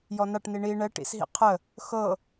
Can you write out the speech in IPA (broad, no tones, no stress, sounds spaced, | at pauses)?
j ɔ n a ʈ n i ɳ i ɳ ɛ ʈ ḭ s ɦ ḭ qʰ ə | x ɤ